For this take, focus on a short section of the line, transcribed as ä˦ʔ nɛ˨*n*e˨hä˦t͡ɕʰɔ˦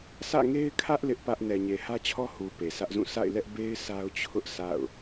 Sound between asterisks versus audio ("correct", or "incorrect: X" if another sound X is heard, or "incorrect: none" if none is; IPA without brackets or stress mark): incorrect: ɲ